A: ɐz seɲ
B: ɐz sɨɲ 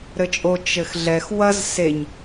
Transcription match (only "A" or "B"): A